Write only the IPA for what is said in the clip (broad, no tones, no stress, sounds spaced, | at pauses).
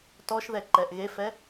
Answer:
t ɔ ʃ ð ɛ ǃ ɛ ʔ ɣ e f ɛ